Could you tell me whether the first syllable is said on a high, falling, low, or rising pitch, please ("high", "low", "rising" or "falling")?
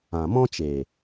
low